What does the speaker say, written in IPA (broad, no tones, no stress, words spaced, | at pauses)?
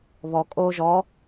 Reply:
βɔ kʼo ʒɔ